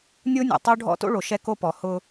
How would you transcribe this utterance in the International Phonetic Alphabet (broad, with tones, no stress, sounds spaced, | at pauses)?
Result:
nʲ o˦ nʲ ɔ̰˨ tˤ o˦ ɖʱ ɔ̰˦ t o̰˦ ɭ o˨ ʃ ɛ˦ k o˦ p ɔ˨ h ʊ˧